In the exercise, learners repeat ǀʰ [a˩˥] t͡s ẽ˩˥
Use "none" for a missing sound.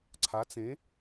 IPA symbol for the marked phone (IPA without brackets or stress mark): a˩˥